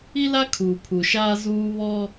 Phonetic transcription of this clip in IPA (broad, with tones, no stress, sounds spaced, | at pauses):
i˦ l a˦ kʰ uː˨ pʰ u˨ ʃ aː˦ z uː˦ β ɔ˦